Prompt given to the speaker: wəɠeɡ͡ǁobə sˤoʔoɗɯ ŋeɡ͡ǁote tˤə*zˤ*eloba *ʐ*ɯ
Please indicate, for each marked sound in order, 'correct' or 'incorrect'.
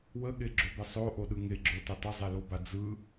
correct, incorrect

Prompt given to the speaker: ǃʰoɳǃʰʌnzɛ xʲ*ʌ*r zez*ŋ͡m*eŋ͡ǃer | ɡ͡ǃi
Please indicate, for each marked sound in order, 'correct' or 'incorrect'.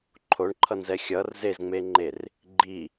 correct, correct

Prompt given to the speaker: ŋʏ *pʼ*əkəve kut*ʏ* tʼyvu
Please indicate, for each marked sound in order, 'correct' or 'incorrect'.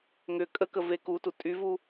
incorrect, incorrect

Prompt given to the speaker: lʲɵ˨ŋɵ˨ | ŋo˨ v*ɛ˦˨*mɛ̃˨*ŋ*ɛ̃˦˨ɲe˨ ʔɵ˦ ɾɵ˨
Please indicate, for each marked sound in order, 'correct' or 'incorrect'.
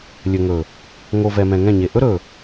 incorrect, correct

